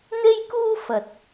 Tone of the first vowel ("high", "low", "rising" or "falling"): high